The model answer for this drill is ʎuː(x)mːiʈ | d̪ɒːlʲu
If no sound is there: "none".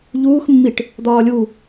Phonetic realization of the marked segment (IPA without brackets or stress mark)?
x